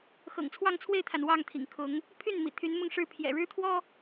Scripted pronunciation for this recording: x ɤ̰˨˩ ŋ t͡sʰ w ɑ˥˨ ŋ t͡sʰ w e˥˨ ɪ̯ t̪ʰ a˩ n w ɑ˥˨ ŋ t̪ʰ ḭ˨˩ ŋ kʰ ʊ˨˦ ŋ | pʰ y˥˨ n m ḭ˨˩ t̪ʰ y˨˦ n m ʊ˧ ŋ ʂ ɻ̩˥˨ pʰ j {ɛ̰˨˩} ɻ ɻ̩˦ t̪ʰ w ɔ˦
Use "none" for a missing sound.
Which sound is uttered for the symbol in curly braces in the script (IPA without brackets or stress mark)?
ɛ̰˨˩